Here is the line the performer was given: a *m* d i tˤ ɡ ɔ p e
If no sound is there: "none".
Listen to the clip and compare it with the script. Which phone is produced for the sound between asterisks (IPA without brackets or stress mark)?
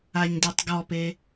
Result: ɲ